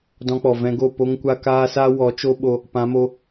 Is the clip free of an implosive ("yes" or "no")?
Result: no